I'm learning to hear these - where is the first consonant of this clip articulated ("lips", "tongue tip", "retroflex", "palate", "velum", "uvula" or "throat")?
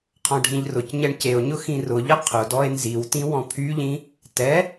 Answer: uvula